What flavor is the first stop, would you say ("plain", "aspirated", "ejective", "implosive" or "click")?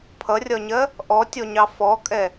aspirated